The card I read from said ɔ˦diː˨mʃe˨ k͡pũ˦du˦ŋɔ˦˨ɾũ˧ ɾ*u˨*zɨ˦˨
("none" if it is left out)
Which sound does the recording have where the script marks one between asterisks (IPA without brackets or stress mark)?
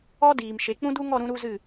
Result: u˦